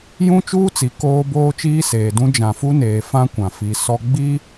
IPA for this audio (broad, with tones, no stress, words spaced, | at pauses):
jũ˦ t͡ʃuː˦t͡si˨ koː˦ boː˦t͡ʃiː˦seː˨dũ˦ d͡ʒã˨fu˦neː˨ fã˦ kʷã˨fi˨ sɔ˦ ɡ͡bi˦